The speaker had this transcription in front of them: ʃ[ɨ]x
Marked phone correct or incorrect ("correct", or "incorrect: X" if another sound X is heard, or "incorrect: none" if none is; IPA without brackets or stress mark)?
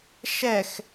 incorrect: ɛ